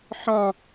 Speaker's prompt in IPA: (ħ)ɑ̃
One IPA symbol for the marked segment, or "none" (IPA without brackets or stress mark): ħ